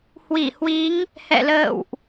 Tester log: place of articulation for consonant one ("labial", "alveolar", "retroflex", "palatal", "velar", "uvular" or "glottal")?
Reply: glottal